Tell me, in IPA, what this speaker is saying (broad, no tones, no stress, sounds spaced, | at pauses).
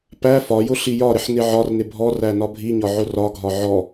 p æ f ɒ j ʊ ɬ i j ɒ ɾ ɪ ħ n ɪ ʕ ɒ r n ɪ bʱ ɔ r æ n ɒ bʱ i ɲ ɒ ʕ ʊ r ɒ ɡʱ ɒ ʕ ɔ